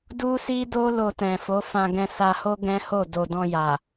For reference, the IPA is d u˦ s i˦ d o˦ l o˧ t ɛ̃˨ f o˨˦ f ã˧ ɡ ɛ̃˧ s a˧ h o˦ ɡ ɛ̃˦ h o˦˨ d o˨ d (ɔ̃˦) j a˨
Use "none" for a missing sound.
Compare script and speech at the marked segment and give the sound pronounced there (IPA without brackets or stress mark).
ɔ̃˧